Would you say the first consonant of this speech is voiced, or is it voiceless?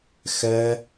voiceless